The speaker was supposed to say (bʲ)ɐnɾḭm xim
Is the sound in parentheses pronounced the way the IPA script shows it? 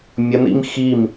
no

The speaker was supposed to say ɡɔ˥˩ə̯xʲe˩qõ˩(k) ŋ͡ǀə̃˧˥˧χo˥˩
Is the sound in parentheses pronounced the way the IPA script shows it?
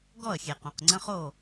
no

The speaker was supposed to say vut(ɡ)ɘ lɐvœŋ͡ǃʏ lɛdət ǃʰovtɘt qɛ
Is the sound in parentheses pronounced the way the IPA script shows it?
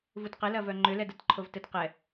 no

